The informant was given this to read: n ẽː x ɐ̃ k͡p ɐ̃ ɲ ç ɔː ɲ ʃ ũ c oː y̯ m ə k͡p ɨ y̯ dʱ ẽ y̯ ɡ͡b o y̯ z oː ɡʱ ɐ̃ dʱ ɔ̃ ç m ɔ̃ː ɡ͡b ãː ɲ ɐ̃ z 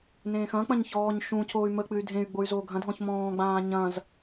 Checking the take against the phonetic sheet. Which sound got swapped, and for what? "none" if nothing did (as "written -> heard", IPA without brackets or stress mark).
none